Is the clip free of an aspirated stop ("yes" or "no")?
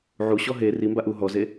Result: yes